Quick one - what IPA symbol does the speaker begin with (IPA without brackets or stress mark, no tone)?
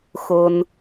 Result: x